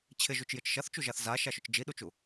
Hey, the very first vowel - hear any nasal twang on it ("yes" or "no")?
no